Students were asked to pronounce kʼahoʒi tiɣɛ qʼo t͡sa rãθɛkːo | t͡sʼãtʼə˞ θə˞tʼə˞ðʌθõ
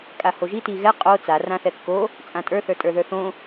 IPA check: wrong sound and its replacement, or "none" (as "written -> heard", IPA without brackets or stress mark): ʌ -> ə˞